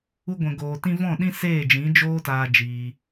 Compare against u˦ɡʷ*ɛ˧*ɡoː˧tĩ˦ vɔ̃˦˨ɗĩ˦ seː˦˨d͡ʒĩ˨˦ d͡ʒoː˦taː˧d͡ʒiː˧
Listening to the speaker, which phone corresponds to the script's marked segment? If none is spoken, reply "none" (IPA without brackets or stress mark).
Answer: ɛ̃˧